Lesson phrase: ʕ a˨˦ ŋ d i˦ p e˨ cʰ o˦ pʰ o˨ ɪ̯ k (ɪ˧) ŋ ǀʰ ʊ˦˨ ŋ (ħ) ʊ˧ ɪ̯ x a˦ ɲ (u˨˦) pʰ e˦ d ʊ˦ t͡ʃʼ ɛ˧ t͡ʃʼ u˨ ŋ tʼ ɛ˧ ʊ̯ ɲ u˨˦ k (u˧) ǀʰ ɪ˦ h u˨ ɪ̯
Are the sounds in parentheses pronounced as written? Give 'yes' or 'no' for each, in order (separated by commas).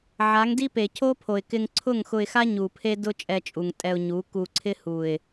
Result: yes, no, no, yes